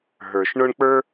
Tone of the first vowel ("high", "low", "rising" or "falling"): low